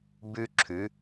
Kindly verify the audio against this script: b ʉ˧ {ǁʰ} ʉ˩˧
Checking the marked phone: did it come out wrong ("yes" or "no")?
no